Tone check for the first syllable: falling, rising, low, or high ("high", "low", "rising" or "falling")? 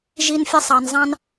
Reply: high